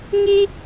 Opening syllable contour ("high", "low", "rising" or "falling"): high